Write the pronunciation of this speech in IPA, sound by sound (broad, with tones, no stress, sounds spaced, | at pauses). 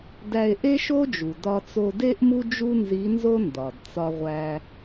d æ˧ e̯ ʔ e˥ ʃ o˥ d͡ʒ u˩ d ɒ˧ t͡s o˧ d e˥ ʔ m u˥ d͡ʒ u˥ n z i˧˥ n z o˥ n d ɒ˩ d t͡s ɒ˧ ʁʷ æ˧